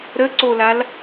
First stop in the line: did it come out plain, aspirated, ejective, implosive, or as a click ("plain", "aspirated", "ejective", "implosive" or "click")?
click